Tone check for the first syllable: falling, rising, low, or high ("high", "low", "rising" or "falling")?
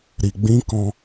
low